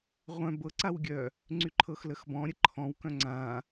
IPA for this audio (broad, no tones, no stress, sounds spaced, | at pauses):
ʁʷ œ̃ b ɤ ǀ a w ɡʲ œ | ŋ͡ǀ y ǃʰ ɤ x l ə x b ɔ̃ ɾʲ ə ǃʰ ɔ̃ w k œ̃ ŋ͡ǀ ã